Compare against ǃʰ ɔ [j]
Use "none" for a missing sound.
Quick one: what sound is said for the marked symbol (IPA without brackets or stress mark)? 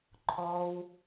w